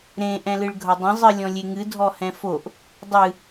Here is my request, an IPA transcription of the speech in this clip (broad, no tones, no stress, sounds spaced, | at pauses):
ɾ ẽ ʔ ɛ̃ l ɨ ɭ ɡʱ ʌ dˤ ə̃ zˤ ɨ lʲ ɔ̃ lʲ e ŋ ɨ dʱ ɔ h ɛ̃ f o ʔ | dˤ ɨ